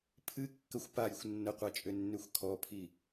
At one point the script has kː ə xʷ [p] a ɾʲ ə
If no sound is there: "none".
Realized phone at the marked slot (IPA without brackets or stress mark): p